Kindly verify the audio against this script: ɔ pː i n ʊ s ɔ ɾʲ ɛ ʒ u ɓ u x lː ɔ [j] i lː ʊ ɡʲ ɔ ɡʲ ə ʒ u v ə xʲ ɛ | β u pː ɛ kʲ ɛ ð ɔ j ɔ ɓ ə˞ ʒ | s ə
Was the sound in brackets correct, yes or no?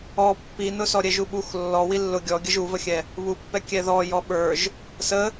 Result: no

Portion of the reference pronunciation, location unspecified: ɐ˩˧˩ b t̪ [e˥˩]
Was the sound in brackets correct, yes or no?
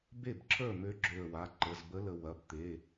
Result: no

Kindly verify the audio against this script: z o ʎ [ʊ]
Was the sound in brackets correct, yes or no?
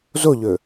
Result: no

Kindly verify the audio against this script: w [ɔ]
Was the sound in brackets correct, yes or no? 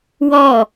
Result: yes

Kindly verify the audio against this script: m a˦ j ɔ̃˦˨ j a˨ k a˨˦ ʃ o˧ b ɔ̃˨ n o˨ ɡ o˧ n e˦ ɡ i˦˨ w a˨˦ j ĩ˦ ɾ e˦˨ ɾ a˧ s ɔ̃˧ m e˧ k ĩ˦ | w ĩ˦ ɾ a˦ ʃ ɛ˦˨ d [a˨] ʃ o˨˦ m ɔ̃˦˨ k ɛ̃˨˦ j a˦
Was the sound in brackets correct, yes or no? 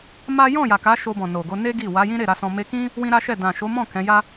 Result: no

